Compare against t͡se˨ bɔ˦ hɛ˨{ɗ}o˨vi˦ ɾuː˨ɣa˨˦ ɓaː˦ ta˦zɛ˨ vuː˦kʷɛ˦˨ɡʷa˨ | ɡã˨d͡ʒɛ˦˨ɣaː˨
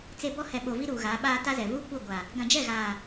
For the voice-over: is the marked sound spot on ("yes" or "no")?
no